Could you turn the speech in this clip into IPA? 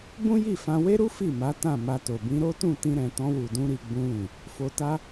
b ũ˦ j i˦˨ f ã˧ w e˦ ɾ u˦ f i˦˨ m a˨˦ t ã˦˨ m a˧ t o˨ b ĩ˧ ɾ o˦ t ũ˦˨ t ĩ˧ ɾ ɛ̃˨ t ɔ̃˧ w u˨ d ũ˧ ɾ i˨ ɡ͡b ũ˧ l ĩ˨ | f o˧ t a˦

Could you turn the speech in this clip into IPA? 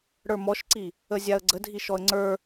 ɽ ə˞ m ɔ ʃ ǀ i | ə zʲ a ə̯ ɡ͡ǀ ə dʱ i ʃ ɔ ə̯ ŋ͡ǀ ə˞

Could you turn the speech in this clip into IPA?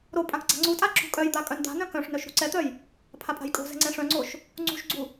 ɾ o pʼ ã k ɡ͡ǀ a̤ ŋ͡ǀ u tʼ a ǁ ṳ kʼ œ j d̪ a kʼ œ n d̪ a̤ n œ̃ k œ̃ ʂ n œ ʃ ɾ ṳ ǀ ɛ t̪ œ j | pʰ a pʼ a̤ j kʼ o̤ z ɛ̤ ŋ͡ǀ ɛ̃ ʂ œ̃ ŋ͡ǀ o ʃ | ŋ͡ǀ ṳ ʃ ɡ͡ǀ u

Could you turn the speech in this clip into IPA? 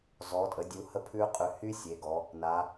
z ɔ˩˧ tʼ ə˩˧ dʲ u˩˧ h ə˧ pʰ ʉ˧ qʼ ʉ˩˧ h y˧ sʲ e˩˧ ɡ ɔ˩˧ | n a˩˧

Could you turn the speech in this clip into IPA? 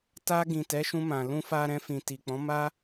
t a˧ ɡ ĩ˨ t ɛ˨˦ ʃ ũ˧ m ã˨ l ũ˧ f a˧ ɾ ɛ̃˧ f ĩ˨ t i˨ k͡p ɔ̃˨˦ m a˦

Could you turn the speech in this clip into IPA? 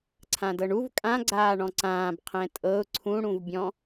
ǀʰ ã d ɤ ɳ u v kʼ ã ɡ͡ǀ aː ɳ ɔ̃ ǀ ãː b qʰ ɛ̃ tʼ ɤ ʊ̯ ǀʰ ũ ɽ ũ v bʲ ɔ̃

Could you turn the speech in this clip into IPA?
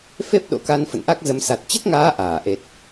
f e˦˥ p̚ ɗ o̰˧˥ k a˧ n f ə̰˧˨ n ʔ a˦˥ k̚ z ə˨˦ m s a˨˩ t̚ t͡ɕ ə˦˥ t̚ ŋ aː˨˦ ʔ aː˧˩ ʔ e˨˩ t̚

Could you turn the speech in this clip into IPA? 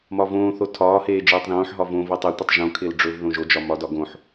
m ɒ v õː θ o tʰ ɒː h eː d͡ʒ eː tˤ ð õː ħ ɦ ɒ v õ v e tˤ e tʷ e tˤ ʒ õ kʰ ɪː l ɖ͡ʐ ɵ v ð õ ʒ o d͡ʒ ɒ m ɒ d ɒ ɡ õ ħ

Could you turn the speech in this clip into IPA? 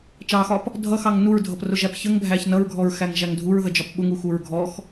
t͡ʃ ɑ x ɒ p | dʱ ʌ x ɑ ŋ n u ɹ dʱ ʌ p r ʊ ʒ æ p ç ə ŋ bʱ æ ç n ʌ ɹ ɡʱ ɔ ɹ x æ ŋ ʒ æ ŋ dʱ u ɹ ð ə d͡ʒ ɒ p ɓ ʊ ŋ u x u ɹ ɡʱ ɔ x

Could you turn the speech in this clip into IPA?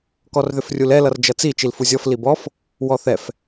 k ɔ r ð ʏ f rʲ u l ɛ l ʌ r d͡ʒ ʌ t͡s i t͡ʃ i l f u zʲ ɔ f l i b ɔ f | w ɔ θ ɛ f

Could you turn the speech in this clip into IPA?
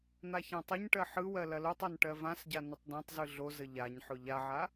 n̪ a ç ã tˤ ɐ ɲ ʈ ɜ ħ ɯ w ɜ l ɐ l o tˤ ɜ n ʈ ɜ v ã s ɟ a n ʊ tˤ d ã tˤ z ɯ ɮ o z ə ʎ a ɲ ħ ʊ ʎ a ʕ a

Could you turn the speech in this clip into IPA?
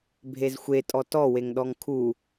bʱ e z xʷ e tʼ ɔ t ɔ w e ŋ ɗ ɔ ŋ kʰ u

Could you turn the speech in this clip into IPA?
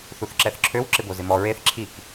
θ u θ ǁ ɛ θ ǁʰ ø w ǁ ɪ b o z ɪ m ɔ ɹ e θ ǁʰ i k

